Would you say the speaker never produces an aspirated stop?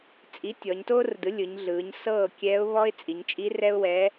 yes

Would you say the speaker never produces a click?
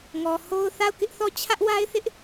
yes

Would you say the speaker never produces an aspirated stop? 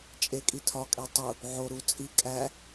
no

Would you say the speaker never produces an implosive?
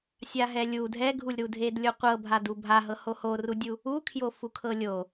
yes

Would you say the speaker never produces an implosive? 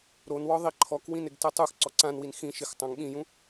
no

